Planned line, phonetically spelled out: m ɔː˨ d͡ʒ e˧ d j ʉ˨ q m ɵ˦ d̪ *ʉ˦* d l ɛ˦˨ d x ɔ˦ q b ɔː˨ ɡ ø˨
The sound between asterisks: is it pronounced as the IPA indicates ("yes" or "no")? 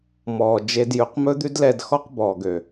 yes